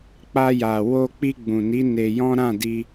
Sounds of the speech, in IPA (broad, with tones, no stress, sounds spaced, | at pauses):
k͡p a˧ j a˨ w o˧ k͡p i˧ ɡ͡b ũ˨ n i˨˦ n e˧ j ɔ̃˦ ɾ ã˦˨ d i˧